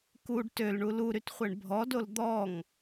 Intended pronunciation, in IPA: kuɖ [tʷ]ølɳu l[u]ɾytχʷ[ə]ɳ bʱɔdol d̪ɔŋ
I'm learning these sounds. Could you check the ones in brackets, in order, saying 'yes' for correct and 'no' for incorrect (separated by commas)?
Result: no, yes, no